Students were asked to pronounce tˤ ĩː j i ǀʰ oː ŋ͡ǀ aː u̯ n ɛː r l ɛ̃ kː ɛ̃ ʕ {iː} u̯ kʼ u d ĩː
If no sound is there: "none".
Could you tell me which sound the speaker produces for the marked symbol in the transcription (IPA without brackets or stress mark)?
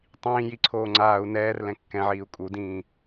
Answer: iː